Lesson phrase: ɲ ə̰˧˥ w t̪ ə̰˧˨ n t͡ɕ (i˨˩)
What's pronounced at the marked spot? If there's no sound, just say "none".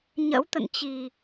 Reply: i˨˩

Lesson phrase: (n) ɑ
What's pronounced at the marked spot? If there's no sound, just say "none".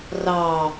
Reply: r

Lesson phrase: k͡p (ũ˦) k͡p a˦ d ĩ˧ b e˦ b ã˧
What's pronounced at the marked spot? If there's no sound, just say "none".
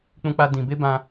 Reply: ũ˦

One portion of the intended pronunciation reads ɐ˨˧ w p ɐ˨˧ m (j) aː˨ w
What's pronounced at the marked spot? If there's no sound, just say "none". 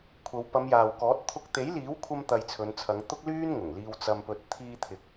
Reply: j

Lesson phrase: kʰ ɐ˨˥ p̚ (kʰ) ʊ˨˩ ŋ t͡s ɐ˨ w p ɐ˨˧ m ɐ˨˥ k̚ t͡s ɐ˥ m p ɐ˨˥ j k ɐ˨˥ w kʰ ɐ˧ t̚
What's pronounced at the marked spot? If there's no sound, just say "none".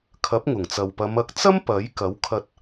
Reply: ŋ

